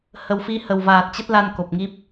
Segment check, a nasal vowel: absent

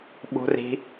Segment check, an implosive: present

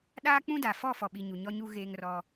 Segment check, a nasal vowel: present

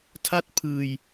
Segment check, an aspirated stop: present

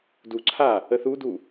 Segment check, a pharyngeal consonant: absent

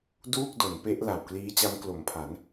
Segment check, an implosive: absent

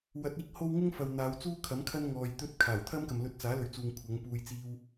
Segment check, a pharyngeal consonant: absent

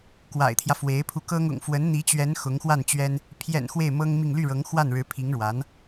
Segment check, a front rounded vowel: present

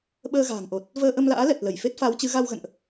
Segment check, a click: absent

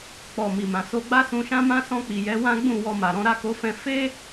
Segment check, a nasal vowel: present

